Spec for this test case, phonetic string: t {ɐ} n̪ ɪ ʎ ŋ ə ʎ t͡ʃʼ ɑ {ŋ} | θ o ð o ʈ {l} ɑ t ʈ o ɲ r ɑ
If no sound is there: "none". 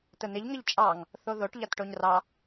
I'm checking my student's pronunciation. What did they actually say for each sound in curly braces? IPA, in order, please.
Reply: ə, ŋ, ʎ

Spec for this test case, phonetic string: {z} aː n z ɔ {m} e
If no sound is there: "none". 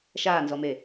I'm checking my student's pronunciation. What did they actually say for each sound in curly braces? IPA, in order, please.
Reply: ʃ, m

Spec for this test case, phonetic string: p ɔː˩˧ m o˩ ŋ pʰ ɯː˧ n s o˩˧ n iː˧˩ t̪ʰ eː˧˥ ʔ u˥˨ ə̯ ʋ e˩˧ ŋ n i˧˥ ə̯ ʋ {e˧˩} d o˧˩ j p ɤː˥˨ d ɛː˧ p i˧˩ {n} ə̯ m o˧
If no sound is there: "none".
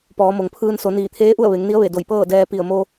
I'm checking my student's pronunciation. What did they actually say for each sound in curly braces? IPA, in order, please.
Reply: e˧˩, none

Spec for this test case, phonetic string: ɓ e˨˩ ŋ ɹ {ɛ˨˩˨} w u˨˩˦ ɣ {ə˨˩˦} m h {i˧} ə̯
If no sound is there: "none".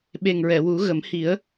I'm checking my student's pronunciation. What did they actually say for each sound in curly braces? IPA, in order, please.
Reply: ɛ˨˩˨, ə˨˩˦, i˨˩˦

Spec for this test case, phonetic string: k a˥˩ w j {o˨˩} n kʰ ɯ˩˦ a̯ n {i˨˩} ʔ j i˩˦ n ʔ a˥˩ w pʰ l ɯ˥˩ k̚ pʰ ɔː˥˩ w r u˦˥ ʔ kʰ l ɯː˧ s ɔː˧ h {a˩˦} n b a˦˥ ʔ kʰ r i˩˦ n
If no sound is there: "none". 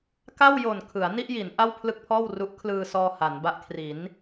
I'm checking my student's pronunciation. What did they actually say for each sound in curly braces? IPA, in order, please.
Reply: o˨˩, i˥˩, a˩˦

